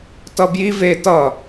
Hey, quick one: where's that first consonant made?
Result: tongue tip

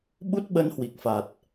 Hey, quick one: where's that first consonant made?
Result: lips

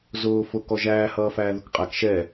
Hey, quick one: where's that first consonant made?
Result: tongue tip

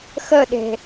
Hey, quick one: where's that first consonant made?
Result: velum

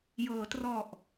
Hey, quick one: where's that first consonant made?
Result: palate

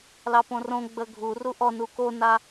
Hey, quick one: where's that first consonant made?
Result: tongue tip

